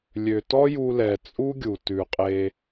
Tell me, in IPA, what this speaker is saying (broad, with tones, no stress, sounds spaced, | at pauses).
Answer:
lʲ ø˨ t ɔ˦ j u˧ l ɛ˨ t͡sʼ u˦ ɡʲ u˨ t ʉ˨ qʼ e˧